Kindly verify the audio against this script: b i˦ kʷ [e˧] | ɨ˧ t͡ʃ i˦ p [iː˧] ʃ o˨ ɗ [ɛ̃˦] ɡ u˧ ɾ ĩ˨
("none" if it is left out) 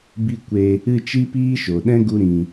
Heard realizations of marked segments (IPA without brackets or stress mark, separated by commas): e˧, iː˦, ɛ̃˦